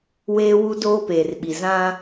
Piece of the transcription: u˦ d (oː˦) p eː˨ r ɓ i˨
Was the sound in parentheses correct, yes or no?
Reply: yes